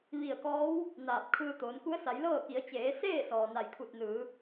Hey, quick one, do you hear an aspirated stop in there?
yes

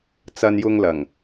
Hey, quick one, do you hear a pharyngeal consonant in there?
no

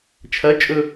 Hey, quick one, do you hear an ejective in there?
yes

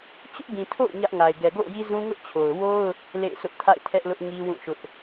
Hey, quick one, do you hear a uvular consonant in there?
no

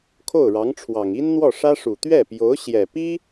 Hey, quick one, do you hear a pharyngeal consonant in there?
no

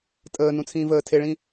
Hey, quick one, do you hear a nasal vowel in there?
yes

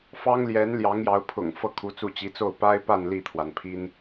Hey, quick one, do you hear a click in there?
no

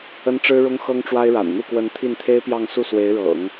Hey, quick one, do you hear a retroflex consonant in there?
yes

